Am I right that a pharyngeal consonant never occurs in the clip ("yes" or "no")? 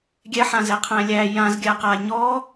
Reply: no